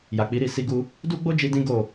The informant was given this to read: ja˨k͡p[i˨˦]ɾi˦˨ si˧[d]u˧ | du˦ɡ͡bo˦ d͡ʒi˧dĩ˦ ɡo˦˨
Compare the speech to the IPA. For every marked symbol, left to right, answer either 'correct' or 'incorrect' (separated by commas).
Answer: correct, incorrect